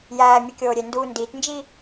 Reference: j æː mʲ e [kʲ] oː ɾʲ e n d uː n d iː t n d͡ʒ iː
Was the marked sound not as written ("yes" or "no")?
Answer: no